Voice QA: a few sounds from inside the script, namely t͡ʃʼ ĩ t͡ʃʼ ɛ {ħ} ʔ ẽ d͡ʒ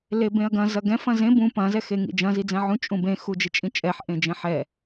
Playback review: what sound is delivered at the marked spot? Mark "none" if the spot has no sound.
ħ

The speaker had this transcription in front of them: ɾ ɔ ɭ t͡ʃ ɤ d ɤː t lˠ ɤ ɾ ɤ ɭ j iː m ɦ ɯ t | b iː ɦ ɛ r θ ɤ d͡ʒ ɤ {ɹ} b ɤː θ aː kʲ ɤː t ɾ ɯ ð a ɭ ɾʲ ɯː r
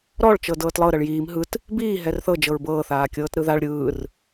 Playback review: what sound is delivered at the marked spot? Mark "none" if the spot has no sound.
ɹ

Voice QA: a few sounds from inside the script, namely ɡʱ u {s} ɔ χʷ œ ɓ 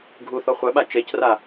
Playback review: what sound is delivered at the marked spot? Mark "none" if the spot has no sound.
θ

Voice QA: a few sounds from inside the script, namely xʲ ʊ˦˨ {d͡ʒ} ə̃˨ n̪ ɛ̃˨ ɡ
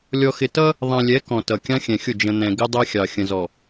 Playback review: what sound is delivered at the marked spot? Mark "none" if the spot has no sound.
d͡ʒ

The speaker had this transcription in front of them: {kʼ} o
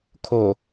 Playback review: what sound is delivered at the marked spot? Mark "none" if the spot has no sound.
kʰ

